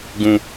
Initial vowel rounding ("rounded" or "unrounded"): rounded